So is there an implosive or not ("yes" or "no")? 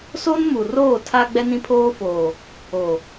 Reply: no